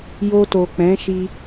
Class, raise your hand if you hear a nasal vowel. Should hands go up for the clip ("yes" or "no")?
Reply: yes